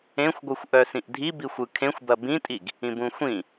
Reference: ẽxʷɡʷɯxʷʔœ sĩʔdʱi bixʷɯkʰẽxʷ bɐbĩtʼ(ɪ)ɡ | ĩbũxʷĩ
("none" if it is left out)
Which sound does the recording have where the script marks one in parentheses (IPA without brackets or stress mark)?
i